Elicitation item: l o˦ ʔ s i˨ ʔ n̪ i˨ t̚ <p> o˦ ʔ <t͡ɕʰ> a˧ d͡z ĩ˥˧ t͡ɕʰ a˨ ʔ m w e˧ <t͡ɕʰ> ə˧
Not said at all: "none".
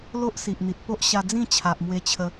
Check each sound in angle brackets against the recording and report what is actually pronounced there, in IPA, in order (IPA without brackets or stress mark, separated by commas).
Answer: p, ɕ, t͡ɕʰ